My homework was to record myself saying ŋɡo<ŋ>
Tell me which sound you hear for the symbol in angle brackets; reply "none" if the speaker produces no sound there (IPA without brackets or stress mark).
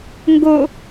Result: none